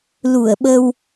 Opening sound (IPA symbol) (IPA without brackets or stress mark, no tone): l